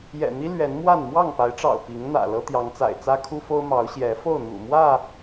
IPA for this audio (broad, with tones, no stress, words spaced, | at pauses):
jɛ̰˨˩n̪i˦ lɥɛ˨˦n mwa˥˨n mwɑ˥˨ŋpa˨˦ɪ̯ʈ͡ʂɑ̰˨˩ʊ̯ pi˨˦ŋn̪ä̰˨˩ lɤ˦t̪jɑ˨˦ŋt͡sa̰˨˩ɪ̯ t͡sä˦ kʰu˦fo˦ʊ̯ mɑ˨˦ʊ̯ɕjɛ˨˦fo˥˨ʊ̯ n̪ṵ˨˩mwä˥˨